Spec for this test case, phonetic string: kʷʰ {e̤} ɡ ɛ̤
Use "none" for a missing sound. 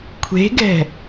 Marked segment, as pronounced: e̤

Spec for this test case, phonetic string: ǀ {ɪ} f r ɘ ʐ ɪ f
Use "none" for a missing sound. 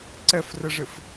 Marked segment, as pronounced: ɛ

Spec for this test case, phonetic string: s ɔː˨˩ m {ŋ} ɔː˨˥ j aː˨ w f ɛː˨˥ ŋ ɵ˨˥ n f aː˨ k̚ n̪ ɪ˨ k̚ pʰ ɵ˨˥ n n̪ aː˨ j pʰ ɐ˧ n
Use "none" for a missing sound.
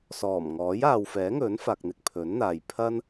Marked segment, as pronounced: ŋ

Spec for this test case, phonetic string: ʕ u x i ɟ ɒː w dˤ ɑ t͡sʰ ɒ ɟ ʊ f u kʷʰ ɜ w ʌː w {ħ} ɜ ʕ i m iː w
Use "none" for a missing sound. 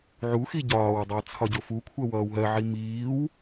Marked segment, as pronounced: ɦ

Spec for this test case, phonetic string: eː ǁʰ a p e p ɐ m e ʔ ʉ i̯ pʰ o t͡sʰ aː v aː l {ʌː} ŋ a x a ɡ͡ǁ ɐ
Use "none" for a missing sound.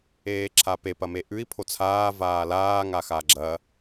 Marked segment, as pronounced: aː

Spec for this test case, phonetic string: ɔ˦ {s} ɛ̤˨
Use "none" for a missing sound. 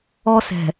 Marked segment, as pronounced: s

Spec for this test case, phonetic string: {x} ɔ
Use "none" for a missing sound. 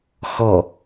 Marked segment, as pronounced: x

